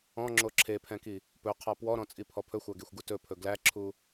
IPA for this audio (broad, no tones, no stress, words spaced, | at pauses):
ɔ̃ŋ͡ǁo ǁʰepʰɛ̃ki | pɵqʰɑ pwɔɾɔ̃t͡sʼipʰɔ pʰɵxʷæɡexʷɡu tɵpʰɵ ɡlæǁʰu